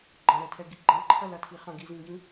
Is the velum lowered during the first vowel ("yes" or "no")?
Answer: yes